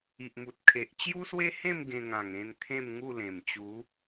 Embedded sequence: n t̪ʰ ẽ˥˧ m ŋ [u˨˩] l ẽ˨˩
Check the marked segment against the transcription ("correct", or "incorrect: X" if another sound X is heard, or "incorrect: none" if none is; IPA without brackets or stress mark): incorrect: u˥˧